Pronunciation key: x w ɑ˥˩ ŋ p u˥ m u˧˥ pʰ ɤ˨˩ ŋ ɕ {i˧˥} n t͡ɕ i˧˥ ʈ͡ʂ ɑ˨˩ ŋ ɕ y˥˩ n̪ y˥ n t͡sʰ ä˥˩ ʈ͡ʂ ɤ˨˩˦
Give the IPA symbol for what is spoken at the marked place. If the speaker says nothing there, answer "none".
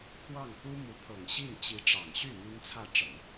i˥˩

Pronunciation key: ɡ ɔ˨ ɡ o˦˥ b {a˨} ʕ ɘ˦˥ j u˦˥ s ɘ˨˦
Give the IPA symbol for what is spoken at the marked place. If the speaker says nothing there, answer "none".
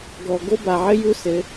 a˨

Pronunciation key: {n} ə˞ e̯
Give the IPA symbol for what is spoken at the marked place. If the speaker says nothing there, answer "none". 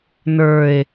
n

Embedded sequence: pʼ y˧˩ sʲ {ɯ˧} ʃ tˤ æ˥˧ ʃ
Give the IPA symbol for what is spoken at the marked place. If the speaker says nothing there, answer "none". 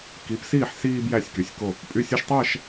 ɯ˧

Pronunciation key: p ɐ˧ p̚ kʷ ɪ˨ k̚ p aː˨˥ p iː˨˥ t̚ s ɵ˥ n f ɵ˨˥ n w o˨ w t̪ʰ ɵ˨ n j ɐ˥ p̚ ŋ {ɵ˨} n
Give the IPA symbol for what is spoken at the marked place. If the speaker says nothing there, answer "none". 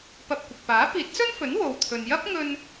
ɵ˧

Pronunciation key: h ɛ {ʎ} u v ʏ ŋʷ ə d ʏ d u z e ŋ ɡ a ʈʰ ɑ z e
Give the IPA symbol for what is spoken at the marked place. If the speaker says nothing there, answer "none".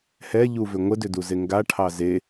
ʎ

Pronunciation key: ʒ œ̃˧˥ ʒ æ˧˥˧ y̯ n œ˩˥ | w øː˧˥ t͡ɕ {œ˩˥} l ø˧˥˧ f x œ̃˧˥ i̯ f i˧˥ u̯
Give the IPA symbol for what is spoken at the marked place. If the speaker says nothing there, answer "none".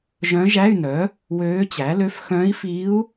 æ˩˥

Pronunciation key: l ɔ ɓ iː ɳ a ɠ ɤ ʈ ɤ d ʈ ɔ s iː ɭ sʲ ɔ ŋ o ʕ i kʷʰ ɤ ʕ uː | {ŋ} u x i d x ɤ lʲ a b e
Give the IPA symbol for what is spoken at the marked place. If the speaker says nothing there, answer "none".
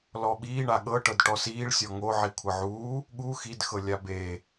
ɠ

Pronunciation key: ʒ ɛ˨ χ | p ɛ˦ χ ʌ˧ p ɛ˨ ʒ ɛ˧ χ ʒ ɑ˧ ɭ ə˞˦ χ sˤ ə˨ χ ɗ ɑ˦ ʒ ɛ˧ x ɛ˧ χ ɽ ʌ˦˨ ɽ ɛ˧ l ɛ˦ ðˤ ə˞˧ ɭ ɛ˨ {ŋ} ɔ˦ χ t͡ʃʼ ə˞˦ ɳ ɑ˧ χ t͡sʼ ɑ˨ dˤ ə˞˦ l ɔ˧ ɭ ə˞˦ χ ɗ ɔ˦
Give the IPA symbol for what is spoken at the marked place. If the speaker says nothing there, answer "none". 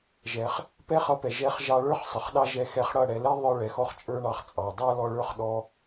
x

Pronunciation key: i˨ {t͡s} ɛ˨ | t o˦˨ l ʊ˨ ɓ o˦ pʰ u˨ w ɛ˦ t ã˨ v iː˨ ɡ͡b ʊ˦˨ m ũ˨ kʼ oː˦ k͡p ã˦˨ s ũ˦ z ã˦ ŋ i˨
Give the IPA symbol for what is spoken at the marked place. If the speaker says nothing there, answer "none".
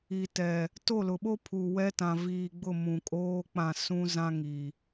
t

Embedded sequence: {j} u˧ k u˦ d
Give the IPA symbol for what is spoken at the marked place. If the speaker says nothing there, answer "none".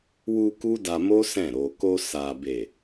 w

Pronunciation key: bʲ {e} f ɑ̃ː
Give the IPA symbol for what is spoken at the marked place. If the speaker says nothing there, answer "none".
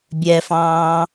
ɛ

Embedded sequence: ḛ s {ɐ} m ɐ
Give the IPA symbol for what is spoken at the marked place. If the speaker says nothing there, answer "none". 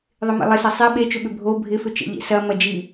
ɐ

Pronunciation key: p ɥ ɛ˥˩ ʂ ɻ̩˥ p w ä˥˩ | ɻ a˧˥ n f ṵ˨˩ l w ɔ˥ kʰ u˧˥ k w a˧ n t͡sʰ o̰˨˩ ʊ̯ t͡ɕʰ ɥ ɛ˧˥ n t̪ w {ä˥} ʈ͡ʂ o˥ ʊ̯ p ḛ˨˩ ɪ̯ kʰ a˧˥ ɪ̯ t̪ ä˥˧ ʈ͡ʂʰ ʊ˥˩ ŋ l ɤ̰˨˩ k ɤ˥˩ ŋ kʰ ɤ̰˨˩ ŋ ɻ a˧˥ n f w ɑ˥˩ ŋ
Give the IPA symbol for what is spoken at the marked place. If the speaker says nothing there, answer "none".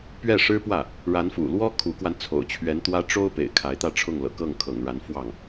ä˥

